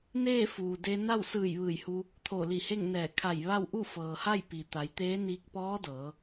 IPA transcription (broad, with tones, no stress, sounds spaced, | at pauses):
n eː˥˨ f uː˩ d e˧ n a˥˨ w s ɯː˧˩ j ʋ ɯː˧˩ j h u˧ | t̪ʰ o˧˩ l i˧˩ h e˥˨ ŋ n ɛː˧˩ kʰ a˧˩ j ʋ a˥˨ w ʔ u˥˨ f ɤː˩ h a˥˨ j p i˩ t̪ a˩˧ j t̪ eː˧˥ n iː˧ k̚ p ɔː˧˥ d ɤː˩˧